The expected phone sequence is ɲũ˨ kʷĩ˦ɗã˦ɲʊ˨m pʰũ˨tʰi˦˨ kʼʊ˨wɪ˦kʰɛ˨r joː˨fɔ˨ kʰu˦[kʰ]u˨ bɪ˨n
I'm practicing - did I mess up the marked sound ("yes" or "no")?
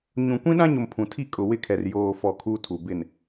yes